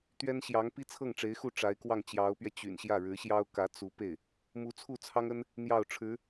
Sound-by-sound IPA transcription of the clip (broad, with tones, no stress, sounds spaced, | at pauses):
t̪ ɥ ɛ˥ n ɕ j ɑ˧˥ ŋ p i˥ t͡sʰ ɤ˥˩ ŋ ʈ͡ʂ e˧˥ ɪ̯ x u˥˩ ʈ͡ʂ a˧˥ ɪ̯ k w ɑ˥˩ ŋ t͡ɕ j ɑ˧˥ ʊ̯ p ɥ ɛ˧ t͡ɕ y̰˨˩ n ɕ j ä˥˩ ɻ ɻ̩˧˥ ɕ j ɑ˥ ʊ̯ k ä˧˥ t͡s u˧˥ p e˥˩ ɪ̯ | m u˧˥ t͡sʰ u˥˩ t͡sʰ ɑ˥ ŋ ə˥ n | n̪ j ɑ˥˩ ʊ̯ ʈ͡ʂʰ ɻ̩˧˥